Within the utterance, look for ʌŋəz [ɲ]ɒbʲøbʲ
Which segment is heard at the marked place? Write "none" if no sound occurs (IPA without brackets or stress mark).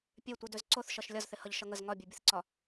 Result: ŋ